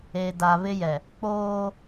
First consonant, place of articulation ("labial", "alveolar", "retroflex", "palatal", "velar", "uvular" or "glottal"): alveolar